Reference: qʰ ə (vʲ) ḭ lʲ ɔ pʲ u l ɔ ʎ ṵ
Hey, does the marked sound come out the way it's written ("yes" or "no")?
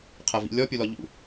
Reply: no